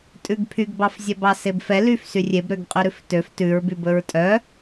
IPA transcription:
tʼ ʉ ɡ pʰ y ɡ b ɑ f zʲ ɛ b ɑ s e b f ɛ l y f s y rʲ e b ɾ ø ɡ qʼ y ɾ ʉ f t ø f t ʉ ɹ b y b ɵ ɹ tʼ œ

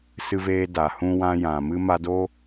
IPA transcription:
s ɨ˧ v eː˧ d a˨ h ũ˧ w ã˧ j ã˨ m ɨ˧ m a˧ d o˦

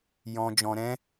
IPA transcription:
j ɔ̃˧ d͡ʒ ɔ̃˧ ɾ ɛ̃˦

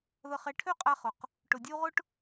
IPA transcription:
ð ə˨ χ ɛ˨ ʈʰ ø˦˨ qʼ a˦ χ ʊ˨ q | ʈ ʊ˨ dʲ ə˦ u̯ ʁ ʊ˦ ʈ

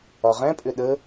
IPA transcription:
ɒ ʁ ɛ̃ pʼ ʏ ɗ ə

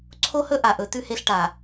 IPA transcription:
ǀʰ o˦ h ɵ˦ ʔ a˨ ʔ ɵ˨˦ t ʉ˦ h e˦ ɬ ʈ a˨

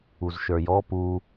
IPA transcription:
u z ʃ ə˞ j ɔ p u

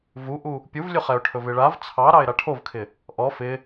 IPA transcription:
v u ʔ u | pʲ u v lʲ ɵ χ ɛ ʊ̯ ʈʰ ɵ v ɪ ɭ a v t͡sʰ ɑ ɾ ɑ ɪ̯ ɾ a ʈʰ o v kʰ ɪ | ʔ ɔ f ɪ

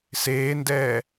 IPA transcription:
s eː n d ɛː

